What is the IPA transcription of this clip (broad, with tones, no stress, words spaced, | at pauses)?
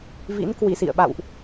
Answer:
vḭ˧˥nkwi˧˩sḭ˧˨ə̯ɓa̰˧˨wʔ